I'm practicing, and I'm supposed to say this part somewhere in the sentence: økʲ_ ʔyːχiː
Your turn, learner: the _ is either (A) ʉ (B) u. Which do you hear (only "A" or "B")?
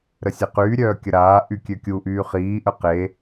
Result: B